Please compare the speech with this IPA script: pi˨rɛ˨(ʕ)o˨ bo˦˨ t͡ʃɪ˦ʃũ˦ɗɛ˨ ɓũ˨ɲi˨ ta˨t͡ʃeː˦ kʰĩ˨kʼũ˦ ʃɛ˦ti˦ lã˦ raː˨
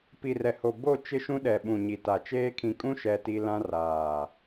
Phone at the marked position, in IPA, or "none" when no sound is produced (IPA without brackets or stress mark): h